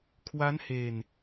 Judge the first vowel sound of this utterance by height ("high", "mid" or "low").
low